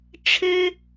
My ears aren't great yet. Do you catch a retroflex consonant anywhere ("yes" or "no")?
yes